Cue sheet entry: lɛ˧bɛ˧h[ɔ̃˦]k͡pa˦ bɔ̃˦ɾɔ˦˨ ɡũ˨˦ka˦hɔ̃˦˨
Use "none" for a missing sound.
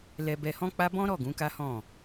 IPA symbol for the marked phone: ɔ̃˦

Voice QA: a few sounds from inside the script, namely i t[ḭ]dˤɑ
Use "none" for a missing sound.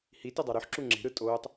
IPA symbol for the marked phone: i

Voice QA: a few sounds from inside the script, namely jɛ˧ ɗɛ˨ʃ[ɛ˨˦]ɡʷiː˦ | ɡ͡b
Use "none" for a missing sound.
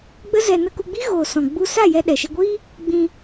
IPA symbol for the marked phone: ɛ˧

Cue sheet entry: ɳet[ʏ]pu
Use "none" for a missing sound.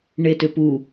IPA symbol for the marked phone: ʏ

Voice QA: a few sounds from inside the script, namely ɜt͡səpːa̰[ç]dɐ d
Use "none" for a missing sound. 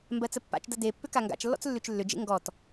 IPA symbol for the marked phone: t͡ʃ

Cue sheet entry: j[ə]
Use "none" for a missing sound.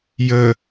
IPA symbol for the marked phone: ə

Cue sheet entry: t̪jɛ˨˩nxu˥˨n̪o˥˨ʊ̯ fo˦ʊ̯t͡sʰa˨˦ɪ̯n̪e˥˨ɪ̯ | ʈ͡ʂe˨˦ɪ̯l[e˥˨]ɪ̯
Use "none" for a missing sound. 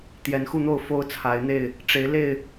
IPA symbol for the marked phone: e˥˨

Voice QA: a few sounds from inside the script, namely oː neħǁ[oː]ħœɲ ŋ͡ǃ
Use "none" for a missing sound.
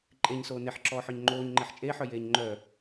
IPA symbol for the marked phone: ɔː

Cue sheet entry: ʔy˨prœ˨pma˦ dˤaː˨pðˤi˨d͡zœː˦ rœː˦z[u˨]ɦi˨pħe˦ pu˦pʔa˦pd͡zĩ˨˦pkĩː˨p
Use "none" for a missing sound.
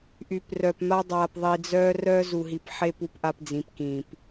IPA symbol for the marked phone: u˨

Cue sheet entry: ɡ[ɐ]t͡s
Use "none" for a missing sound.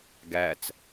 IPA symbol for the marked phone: æ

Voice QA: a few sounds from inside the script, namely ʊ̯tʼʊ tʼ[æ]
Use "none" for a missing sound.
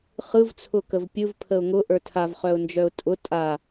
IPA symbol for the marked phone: a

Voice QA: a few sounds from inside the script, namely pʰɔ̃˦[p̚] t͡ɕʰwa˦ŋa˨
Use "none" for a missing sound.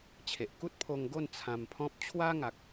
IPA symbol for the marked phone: p̚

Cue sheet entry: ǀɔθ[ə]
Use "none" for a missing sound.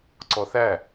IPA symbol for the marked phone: æ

